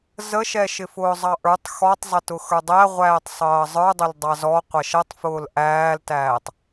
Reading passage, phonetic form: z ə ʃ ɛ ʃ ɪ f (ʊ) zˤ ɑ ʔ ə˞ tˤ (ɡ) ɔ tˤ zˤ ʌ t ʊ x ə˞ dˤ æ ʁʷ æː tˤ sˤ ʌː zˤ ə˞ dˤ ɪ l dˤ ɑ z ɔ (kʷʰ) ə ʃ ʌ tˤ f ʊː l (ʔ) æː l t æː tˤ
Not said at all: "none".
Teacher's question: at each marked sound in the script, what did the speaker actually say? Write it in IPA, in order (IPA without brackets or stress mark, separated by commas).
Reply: ʊː, x, qʷ, ʔ